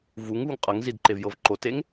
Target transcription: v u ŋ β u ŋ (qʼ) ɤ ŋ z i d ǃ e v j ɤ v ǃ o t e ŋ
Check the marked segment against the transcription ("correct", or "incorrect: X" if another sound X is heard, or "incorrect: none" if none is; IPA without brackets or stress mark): correct